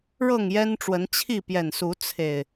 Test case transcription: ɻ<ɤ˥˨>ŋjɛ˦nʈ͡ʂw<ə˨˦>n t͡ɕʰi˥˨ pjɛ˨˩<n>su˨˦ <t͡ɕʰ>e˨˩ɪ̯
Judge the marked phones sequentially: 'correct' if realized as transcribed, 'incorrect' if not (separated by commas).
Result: correct, correct, correct, incorrect